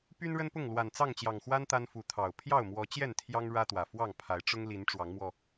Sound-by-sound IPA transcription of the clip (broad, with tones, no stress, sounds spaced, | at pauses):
p y˦ n ɻ ə˦ n p ʊ˥˨ ŋ l w a˨˩ n t͡s ɑ˥˨ ŋ t͡ɕ j ɑ˨˩ ŋ x w a˦ n t̪ a˦ n f u˨˦ t̪ʰ ɑ˨˩ ʊ̯ pʰ j ɑ˥˨ ʊ̯ m w ɔ˨˦ t͡ɕ j ɛ˥˨ n t̪ʰ j ɑ˦ ŋ ɻ ä˦ t̪ w ä˨˩ f w ɑ˥˨ ŋ pʰ a˨˦ ɪ̯ ʈ͡ʂ ʊ˦ ŋ l i˨˦ n ʈ͡ʂ w ɑ˨˦ ŋ m w ɔ˧